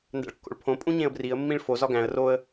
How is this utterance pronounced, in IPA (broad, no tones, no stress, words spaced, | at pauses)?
ndæ̰ɭkːo̰ɭpʰõpʼũ ɲẽə̯briə̯mːĩɭ fozɒ ɡæ̃ə̯ roə̯